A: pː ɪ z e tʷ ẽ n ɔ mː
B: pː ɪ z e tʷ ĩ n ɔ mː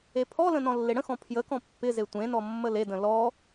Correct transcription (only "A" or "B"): A